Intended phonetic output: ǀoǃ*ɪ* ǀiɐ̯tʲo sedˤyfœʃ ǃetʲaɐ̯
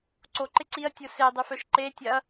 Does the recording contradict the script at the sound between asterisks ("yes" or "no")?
no